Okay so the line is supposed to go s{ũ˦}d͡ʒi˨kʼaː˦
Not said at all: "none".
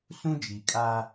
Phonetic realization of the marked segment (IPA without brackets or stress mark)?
ũ˦